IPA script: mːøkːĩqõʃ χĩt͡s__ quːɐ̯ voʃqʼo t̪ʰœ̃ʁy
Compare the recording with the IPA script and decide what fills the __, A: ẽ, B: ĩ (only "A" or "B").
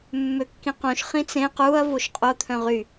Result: A